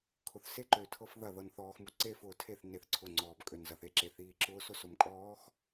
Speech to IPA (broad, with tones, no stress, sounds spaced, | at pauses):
kʰ ʊ˨ θ s e˦ ǃ ø˨ tʰ ɤ˦ f ð ɐ˦˨ ð ɤ˨ n θ ɔː˨ x m u˨ ǀ e˦ f ʊː˨ tʰ e˦˨ θ n e˦˨ θ ǀʰ ʊ˦˨ ŋ͡ǀ ɔː˨ b kʼ ø˨ n z ɐ˨ θ e˦ ǁ e˨ θ iː˨ ǁ ʊː˦ s ʊ˦ s ʊ˨ m kʼ ɔː˨˦ x